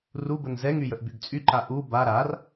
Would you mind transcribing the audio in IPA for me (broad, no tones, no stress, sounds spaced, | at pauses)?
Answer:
r u b ə n z ɛ ŋ y j ə ʔ b y ɡ t͡sʼ y ǃ a ʔ u b a ɾ a r